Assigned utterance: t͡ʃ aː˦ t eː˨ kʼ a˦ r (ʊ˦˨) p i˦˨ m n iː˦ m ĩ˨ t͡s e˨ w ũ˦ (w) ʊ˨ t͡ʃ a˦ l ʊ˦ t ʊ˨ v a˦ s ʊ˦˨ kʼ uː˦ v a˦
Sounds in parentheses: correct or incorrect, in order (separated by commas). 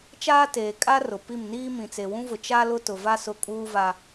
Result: incorrect, incorrect